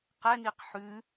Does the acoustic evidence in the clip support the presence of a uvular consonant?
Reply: yes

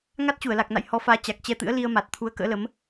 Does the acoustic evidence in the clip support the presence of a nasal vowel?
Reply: no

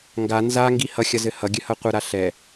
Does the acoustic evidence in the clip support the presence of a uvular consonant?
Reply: yes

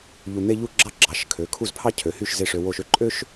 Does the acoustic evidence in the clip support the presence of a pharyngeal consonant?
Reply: no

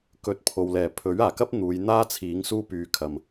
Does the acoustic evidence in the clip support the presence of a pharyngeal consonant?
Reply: no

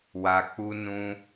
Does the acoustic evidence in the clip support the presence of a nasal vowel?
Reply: yes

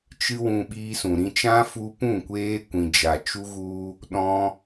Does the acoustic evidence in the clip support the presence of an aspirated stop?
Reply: no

